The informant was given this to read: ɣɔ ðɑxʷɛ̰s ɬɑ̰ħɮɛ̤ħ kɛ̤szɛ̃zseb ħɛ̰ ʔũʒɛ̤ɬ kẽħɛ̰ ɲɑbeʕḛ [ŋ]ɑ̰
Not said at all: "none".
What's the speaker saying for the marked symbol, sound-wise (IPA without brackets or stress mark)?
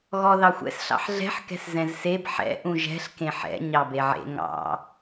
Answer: ŋ